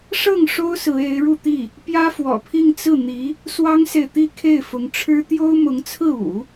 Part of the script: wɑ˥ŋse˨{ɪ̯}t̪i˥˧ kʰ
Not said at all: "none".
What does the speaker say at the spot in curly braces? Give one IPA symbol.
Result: ɪ̯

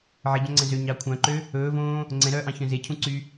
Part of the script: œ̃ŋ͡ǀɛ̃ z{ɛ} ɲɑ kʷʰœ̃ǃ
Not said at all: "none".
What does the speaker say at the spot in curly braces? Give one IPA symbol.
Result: ø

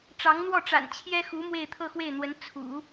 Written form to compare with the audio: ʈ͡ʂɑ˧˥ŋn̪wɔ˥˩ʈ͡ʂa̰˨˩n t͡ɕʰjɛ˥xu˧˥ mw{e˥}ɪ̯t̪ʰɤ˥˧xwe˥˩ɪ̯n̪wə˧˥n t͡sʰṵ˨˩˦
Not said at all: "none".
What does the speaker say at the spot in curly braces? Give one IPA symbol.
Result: e˥˧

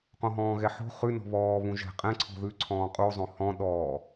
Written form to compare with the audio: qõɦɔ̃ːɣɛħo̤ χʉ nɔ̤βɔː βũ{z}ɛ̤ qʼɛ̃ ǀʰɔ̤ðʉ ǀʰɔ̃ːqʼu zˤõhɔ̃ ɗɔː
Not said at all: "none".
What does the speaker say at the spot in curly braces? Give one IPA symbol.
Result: ʒ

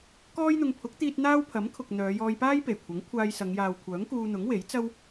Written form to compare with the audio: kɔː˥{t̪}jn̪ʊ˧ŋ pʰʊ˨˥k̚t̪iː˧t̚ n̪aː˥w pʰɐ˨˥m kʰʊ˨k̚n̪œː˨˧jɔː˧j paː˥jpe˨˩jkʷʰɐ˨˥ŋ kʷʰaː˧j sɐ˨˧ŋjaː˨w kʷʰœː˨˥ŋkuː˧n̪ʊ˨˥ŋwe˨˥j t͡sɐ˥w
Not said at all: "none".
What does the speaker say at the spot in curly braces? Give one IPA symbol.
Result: none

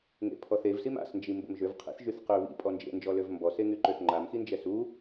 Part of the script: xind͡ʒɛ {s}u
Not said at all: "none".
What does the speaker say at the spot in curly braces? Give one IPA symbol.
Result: s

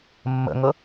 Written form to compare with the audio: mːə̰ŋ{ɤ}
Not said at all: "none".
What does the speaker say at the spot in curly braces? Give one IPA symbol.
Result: ɤ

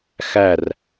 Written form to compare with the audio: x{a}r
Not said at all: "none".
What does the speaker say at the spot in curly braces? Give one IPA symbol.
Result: æ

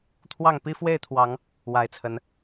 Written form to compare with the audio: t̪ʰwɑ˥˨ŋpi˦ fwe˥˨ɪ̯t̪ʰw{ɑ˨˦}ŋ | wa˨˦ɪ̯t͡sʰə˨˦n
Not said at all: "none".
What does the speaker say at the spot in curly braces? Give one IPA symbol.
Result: ɑ˨˦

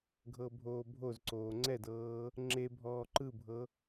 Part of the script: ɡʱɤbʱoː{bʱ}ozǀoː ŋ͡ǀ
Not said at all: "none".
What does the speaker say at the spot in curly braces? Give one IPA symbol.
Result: bʱ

